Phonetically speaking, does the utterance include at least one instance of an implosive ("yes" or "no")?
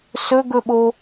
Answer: yes